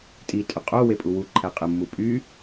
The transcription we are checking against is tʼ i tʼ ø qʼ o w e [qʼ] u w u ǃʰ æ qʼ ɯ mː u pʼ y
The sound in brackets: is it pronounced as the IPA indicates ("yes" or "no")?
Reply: no